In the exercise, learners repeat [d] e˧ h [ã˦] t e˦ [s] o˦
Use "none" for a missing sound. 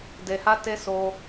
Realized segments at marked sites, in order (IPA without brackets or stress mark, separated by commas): d, a˦, s